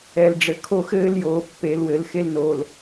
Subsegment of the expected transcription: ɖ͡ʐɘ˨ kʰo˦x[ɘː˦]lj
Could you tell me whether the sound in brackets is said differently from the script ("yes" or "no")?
no